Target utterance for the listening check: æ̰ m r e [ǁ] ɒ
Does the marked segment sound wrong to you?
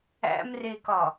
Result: yes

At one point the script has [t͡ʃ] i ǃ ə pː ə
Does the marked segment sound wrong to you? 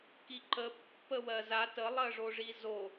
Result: yes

